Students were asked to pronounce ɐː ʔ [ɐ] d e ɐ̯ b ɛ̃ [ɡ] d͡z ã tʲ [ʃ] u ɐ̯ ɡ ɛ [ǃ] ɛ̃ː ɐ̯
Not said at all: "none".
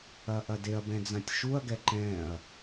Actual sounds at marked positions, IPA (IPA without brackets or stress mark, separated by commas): ɐ, none, ʃ, ǃ